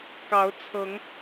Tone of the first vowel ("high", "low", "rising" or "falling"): rising